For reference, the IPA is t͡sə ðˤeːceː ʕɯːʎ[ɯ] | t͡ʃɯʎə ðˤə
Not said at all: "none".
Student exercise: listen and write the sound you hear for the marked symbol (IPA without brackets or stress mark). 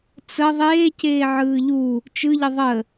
u